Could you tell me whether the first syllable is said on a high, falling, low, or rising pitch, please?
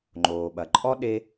low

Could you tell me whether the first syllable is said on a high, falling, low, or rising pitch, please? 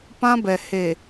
high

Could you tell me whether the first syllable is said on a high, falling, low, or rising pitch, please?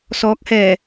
rising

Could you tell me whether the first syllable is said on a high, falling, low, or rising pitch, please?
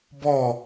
falling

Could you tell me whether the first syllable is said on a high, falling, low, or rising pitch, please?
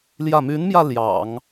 falling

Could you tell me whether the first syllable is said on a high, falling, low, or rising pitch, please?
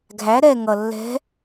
rising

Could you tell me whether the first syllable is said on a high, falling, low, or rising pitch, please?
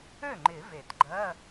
falling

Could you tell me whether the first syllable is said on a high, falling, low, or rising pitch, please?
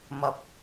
rising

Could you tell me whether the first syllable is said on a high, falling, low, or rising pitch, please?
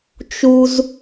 high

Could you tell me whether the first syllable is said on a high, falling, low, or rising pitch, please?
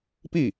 falling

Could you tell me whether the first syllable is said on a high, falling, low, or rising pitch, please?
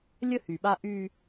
high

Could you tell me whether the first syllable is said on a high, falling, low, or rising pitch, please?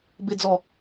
low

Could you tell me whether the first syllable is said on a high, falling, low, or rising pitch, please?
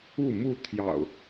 falling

